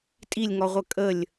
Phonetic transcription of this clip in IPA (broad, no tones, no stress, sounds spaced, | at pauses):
tʼ i lʲ ŋ ɔ ʁʷ ə kʼ ə lʲ